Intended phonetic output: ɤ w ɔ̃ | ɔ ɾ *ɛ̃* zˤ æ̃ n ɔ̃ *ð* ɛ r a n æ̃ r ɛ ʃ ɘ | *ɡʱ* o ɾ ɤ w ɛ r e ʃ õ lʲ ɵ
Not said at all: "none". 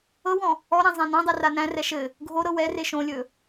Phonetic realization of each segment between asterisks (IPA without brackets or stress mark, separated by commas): æ̃, dˤ, ɡʱ